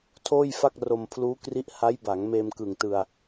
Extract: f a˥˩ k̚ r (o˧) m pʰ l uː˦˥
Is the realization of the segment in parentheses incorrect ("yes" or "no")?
no